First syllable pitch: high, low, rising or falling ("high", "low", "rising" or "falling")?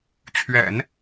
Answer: low